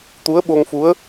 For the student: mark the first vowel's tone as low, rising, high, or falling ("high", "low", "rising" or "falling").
rising